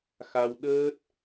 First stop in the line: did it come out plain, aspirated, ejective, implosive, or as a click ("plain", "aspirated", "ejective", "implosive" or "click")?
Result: implosive